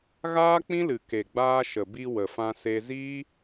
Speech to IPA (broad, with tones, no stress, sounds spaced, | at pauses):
ɣ aː˦ k͡p ĩ˦ l ɨ˨ k e˨ ɡ͡b aː˧ ʃ ə˨ b i˧ w ə˨ f ã˧ s e˧ z iː˦